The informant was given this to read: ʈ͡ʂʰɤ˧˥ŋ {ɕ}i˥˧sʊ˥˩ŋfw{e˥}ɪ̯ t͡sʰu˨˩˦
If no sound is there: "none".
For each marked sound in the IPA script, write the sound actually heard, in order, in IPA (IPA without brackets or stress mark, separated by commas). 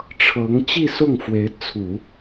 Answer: t͡ɕ, e˧˥